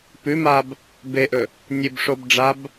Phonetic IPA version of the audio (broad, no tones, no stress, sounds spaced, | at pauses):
p ʉ m a b | b e ʔ ɵ | nʲ ɨ b ʂ o b ɖ͡ʐ a b